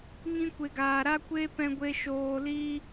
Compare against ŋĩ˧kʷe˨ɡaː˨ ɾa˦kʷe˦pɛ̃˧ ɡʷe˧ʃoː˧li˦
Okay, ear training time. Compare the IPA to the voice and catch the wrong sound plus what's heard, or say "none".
none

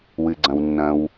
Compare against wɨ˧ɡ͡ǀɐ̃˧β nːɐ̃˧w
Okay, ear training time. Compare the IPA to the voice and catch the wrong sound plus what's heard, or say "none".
β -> w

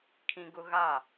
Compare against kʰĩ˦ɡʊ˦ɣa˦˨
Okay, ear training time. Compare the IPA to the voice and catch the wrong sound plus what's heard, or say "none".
none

